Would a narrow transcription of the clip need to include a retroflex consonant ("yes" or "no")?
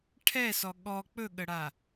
yes